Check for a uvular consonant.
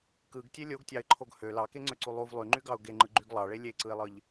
absent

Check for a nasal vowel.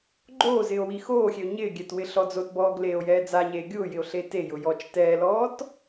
absent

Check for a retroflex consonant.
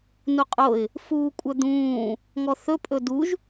absent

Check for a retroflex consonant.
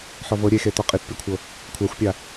absent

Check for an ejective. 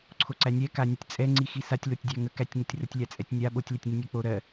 present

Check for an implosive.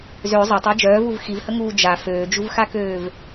absent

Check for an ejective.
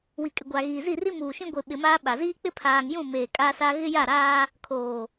present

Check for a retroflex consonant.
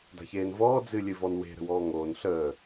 absent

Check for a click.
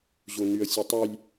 absent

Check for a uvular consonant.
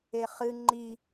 present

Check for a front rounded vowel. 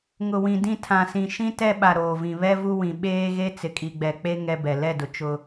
absent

